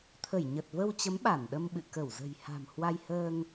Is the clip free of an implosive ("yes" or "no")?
no